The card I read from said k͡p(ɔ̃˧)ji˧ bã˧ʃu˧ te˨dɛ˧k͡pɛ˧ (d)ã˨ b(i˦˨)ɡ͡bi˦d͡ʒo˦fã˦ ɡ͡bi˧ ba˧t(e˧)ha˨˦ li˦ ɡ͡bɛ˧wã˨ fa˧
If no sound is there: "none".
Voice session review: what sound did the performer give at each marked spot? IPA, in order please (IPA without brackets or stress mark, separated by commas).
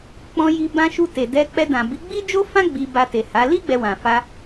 ɔ̃˧, d, i˨˦, e˨